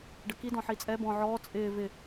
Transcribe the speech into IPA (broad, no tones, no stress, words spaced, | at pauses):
ɖəki dɔ̃ħit͡sʼɛ bɔ̃ ʕɔː t͡sʼɪː vɪ